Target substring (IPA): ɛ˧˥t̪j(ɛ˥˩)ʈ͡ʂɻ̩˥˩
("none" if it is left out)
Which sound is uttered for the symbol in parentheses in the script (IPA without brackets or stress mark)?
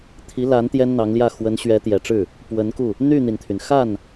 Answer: ɛ˨˩